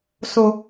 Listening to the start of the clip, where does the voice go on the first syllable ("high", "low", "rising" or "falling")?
low